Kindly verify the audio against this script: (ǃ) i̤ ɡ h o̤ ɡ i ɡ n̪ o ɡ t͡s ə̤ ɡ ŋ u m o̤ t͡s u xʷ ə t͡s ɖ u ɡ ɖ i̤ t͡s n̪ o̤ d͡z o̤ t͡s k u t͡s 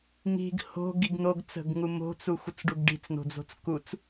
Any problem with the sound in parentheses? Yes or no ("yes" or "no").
yes